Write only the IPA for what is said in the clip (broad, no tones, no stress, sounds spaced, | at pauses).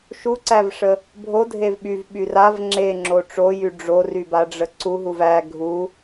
ʃ u ǀ æ v ʂ ə | bʱ o dʱ e v ɓ y v ɓ y r a v ŋ͡ǁ e ŋ͡ǁ o ʈ͡ʂ o j y ɖ͡ʐ o r y b a ɖ͡ʐ ə ǀ u ɦ u v æ ɡʱ u